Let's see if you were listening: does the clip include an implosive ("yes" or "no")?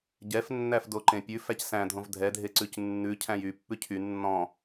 no